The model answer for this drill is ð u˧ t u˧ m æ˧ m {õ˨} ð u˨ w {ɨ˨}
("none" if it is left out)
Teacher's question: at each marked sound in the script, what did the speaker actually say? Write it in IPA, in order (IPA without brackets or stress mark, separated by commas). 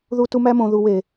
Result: õ˨, e˨